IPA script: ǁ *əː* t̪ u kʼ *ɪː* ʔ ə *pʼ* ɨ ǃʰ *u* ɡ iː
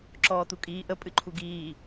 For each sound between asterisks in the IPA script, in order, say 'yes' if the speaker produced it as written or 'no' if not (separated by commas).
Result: no, no, yes, yes